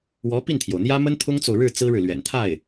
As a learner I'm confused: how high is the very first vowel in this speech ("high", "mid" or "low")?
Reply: mid